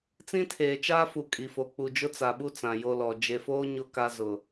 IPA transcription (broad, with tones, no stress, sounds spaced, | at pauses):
t͡s ĩ˦ tʰ eː˨ t͡ʃ aː˦ f u˨ kʼ i˨ f o˨ k͡p u˨ d͡ʒ ʊ˦ t͡s a˨ ɓ u˦ t͡s ã˨ j o˦ l ɔ˨ d͡ʒ e˨ f oː˦ ɲ ʊ˦ k a˦ z ʊ˨